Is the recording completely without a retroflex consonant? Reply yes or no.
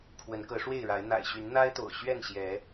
no